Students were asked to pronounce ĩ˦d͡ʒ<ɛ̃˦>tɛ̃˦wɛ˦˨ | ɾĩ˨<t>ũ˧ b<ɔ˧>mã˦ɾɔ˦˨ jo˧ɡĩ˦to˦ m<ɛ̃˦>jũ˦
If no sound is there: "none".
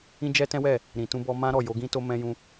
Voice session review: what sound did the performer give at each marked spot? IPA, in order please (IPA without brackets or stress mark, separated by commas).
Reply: ɛ˦, t, ɔ˧, ɛ̃˦